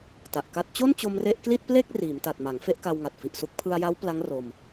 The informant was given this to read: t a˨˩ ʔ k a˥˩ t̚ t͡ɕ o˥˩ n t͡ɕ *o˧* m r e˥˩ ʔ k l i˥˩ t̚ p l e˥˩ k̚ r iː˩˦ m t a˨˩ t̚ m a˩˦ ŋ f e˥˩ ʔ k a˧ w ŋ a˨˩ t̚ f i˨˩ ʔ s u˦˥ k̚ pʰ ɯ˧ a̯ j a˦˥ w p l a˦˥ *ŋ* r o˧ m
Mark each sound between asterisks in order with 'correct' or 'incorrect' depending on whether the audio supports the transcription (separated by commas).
correct, correct